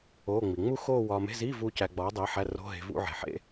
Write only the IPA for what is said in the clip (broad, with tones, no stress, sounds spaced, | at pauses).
o˧˥˧ ŋ͡m i˩ ŋ͡m u˥˧ x oː˥˧ w ɒː˧ m e̤˧˥˧ z iː˧˥˧ v uː˧ c æ˧ ɡ͡b ɒː˨˥ dˤ iː˨˥ ħ æ˧˥˧ r o̤˧˥˧ ɦ e̤˧ v ṵ˥˧ ʕ e̤˩ ħ ḛ˥˧